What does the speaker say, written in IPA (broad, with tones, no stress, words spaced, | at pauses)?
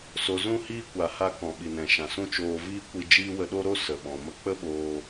so˧zũ˦hiː˦ kʷa˧ha˦ kɔ̃˨ɓi˨nɛ̃˨ ʃã˨sũ˦t͡ʃoː˧ viː˦kʷi˧d͡ʒiː˦ wə˧ɗo˦ ɾo˦ sə˨ɓɔ̃˨ mə˧k͡pə˦ɓoː˧